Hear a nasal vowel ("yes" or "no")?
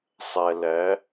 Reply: no